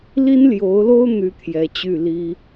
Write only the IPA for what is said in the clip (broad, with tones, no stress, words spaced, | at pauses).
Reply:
li˥nljo˧˥ʊ̯lo˥ʊ̯ n̪y˥t̪ʰjɛ˧˥ t͡ɕy˥˩ li˥